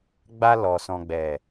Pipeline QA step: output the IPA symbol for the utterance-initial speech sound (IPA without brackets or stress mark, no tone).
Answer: ɡ͡b